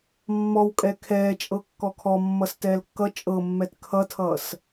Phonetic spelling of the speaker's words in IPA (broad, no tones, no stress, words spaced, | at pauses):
mːɔwkʼɛ kʰɛːt͡ʃʼɤ kːɔkʰɔmːʌs tɛːlkːʌ t͡ʃʼɤ mːɛtkʰʌtʰʌːs